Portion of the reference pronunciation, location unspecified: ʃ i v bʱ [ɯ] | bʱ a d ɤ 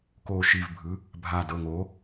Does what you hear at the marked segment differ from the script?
no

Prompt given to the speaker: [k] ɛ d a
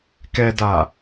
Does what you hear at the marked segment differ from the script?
no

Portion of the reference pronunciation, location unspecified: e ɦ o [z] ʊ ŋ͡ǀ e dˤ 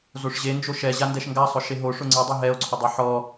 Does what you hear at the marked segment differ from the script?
yes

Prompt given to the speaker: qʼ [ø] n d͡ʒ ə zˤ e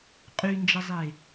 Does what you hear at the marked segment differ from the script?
yes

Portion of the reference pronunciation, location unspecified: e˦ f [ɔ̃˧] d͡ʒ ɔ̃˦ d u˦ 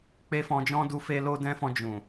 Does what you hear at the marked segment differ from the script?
no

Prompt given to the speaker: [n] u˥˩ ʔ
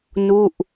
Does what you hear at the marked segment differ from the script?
no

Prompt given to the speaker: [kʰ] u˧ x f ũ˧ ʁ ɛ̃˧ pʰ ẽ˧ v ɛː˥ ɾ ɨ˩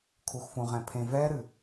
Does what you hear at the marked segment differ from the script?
no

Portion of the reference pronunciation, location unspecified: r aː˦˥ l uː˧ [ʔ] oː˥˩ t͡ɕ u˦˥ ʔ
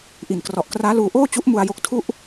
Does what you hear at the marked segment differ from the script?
no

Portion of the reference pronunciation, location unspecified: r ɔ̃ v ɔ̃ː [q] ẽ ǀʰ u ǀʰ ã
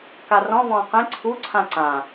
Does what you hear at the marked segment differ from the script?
no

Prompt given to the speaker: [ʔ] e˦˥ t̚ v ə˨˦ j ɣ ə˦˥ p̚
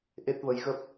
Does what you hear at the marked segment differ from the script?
no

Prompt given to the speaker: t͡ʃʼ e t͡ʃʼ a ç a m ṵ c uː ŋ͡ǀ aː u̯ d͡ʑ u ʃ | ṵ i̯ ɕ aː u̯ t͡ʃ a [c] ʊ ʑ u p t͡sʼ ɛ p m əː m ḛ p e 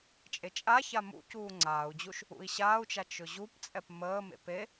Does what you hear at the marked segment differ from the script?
yes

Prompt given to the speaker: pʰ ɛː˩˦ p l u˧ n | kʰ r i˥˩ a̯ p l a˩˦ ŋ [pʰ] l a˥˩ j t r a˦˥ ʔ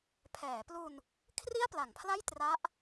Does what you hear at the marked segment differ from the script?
no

